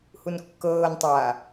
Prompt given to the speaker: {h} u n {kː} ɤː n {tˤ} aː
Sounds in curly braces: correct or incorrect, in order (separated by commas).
correct, correct, correct